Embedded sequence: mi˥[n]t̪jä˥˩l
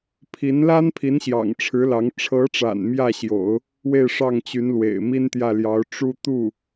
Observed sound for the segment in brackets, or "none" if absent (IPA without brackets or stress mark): n